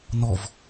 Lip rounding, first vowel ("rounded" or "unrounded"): rounded